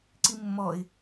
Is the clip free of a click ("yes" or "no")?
no